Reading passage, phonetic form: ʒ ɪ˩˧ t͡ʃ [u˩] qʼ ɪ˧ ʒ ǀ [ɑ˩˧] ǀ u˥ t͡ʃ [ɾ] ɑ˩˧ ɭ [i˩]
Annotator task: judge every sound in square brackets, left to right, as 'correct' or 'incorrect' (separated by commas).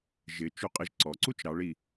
incorrect, incorrect, correct, correct